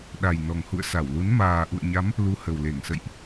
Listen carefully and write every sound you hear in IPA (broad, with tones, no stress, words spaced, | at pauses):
ɗa˨˩jnɔ˨˩ŋhṵ˧˨ə̯ sa˧˩wlu˨˦n maː˨˩ʔṵ˧˨ə̯ɲa˨˦m | lu˧hə˨˩wle˧˩ŋsə̰˧˨jʔ